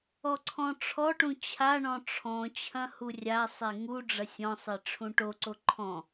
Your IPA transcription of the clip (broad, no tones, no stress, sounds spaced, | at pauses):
ɔ ǀʰ ɔ̃ ʈ͡ʂʰ ɔ ʈ ũ t͡ɕʰ a ɳ ɔ̃ ʈ͡ʂʰ ɔ̃ t͡ɕʰ ɐ̃ h u rʲ a sˤ e ŋ u ɖ͡ʐ ɐ sʲ ɔ̃ sˤ e ʈ͡ʂʰ ũ ʈ o ǀ o ǃʰ ɔ̃